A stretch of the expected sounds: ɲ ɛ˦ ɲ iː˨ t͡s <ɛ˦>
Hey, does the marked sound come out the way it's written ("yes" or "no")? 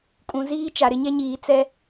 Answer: yes